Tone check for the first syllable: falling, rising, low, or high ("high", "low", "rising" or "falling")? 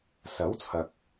rising